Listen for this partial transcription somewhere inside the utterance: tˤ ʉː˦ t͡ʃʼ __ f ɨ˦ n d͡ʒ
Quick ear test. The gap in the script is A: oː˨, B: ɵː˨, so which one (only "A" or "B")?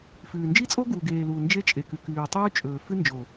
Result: B